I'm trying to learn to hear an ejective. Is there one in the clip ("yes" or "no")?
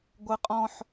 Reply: yes